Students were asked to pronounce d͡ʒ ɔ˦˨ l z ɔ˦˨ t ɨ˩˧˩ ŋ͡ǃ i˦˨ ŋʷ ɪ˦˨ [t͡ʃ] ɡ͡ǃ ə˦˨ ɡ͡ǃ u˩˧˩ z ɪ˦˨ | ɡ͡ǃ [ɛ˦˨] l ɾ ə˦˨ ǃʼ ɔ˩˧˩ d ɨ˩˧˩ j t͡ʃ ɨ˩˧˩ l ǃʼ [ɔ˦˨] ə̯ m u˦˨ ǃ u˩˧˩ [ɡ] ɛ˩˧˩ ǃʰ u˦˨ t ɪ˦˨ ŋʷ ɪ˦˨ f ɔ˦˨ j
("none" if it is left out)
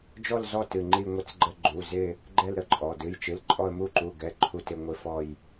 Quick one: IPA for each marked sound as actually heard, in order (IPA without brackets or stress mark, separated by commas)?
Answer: t͡s, ɛ˦˨, ɔ˦˨, ɡ